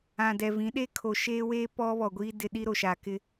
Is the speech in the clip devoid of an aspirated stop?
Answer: no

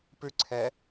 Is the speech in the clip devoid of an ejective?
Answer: yes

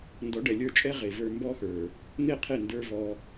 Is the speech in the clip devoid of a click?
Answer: yes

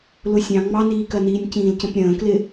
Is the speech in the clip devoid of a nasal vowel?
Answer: no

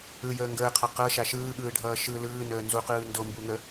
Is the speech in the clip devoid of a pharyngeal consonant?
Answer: yes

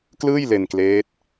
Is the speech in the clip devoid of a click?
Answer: yes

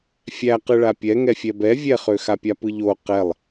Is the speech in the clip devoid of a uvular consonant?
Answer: no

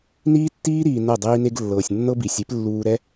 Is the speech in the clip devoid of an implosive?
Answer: yes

